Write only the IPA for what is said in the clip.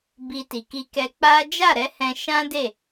b i˧ t i˨ k i˧ k ɛ˧ k͡p a˦ d͡ʒ a˦˨ ɾ ɛ˨˦ h ɛ̃˧ ʃ ã˦ d e˦˨

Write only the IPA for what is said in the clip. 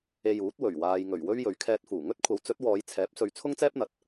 e˧ j uː˨˥ t̚ w ɵ˨˩ ɥ w aː˨ j ŋ ɵ˨˩ ɥ w ɵ˥ ɥ j ɵ˨ ɥ kʰ ɛː˧ t̚ f uː˨˩ ŋ ɵ˥ t̚ kʷʰ ɐ˨˥ w t͡s ɵ˨˥ t̚ w ɔː˨˧ j t͡sʰ ɛː˨˥ p̚ s ɵ˨˧ ɥ t͡sʰ ʊ˥ ŋ t͡s ɛː˥ p̚ n̪ ɐ˨ t̚

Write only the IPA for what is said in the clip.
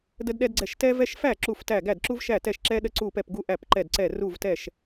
d ə˥ d ɗ ɛ˥ d ɡ͡ǀ ɛ˥˩ ʃ t ɛ˥ v ɛ˥ ʃ f æ˥˩ ǁ u˥˩ f t æ˥˩ ɡ æ˥˩ d ǁ u˥ v ʃ æ˥˩ t ɛ˥˩ ʃ ǁ ɛ˥ ɗ ə˥ ǀ u˥˩ p ɛ˥˩ p ɡ u˥ ʔ æ˥˩ p ǃ ɛ˥˩ d ǀ ɛ˥˩ r u˥˩ v t ɛ˥˩ ʃ

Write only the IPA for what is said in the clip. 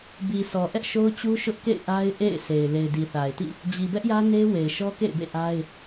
b i˨ s ɔ˨ ʔ ɛ˦ ʔ ʃ o˦ ʊ̯ t͡ɕ u˦ ʃ ʊ˦ ʔ k ḛ˦˨ ɪ̯ ʔ a˦ ɪ̯ ʔ ḛ˦˨ ɪ̯ s e˨ ɪ̯ l e˨ ɪ̯ d i˨ θ a˨ ɪ̯ t ḭ˦˨ | d͡ʑ i˨ b ɛ˦ ʔ j ä˦ n e˦ w e˨ ɪ̯ ʃ ɔ˦ k ḛ˦˨ ɪ̯ b ḛ˦˨ ʔ a˦ ɪ̯

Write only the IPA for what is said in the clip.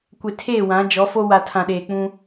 kʷ e˨ tʰ eː˦˨ w ã˨˦ d͡ʒ ɔ˨˦ f o˦ w a˨ tʰ ã˨ ɗ eː˨ k͡p ũ˦

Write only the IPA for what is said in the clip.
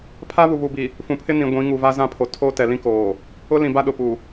pʰ a˦ β u˨ β u˨ b i˨ | f ũ˨ pʰ ɪ˦ n ĩ˨ ɡʷ ĩ˨˦ ŋ u˨ v a˦ z ã˦ pʰ o˨ tʰ oː˦ t ɛ˨ l ĩ˦ k oː˨ | ʊ˦ l ĩ˨ b a˦ ɗ ʊ˨ p u˨

